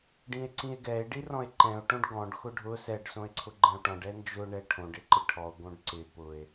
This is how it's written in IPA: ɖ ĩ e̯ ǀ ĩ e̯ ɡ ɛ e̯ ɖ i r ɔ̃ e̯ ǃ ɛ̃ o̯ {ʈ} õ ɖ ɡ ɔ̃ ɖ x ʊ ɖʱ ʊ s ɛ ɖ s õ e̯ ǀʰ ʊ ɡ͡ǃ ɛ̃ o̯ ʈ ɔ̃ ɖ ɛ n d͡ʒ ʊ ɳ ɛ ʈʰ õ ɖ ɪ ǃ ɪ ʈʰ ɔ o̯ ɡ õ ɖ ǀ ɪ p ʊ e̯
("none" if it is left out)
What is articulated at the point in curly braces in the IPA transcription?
ʈ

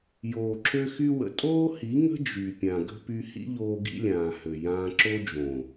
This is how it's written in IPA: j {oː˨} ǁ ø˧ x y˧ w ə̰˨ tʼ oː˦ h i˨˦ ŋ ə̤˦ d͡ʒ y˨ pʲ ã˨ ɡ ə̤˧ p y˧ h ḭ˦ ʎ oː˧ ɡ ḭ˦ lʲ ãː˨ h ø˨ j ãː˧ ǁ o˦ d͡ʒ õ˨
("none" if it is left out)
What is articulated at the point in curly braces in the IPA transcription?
oː˨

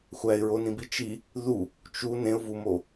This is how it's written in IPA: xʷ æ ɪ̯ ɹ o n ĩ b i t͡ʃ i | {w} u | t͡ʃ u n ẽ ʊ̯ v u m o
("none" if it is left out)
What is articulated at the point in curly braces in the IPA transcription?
ð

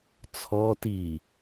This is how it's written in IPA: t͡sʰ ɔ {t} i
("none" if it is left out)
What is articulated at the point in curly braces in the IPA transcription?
t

